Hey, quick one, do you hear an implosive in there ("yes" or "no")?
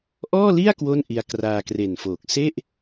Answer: no